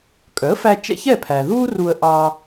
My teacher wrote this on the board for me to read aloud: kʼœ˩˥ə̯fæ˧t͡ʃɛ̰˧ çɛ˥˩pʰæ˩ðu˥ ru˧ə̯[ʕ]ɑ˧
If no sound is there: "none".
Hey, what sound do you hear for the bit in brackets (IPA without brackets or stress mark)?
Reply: ʔ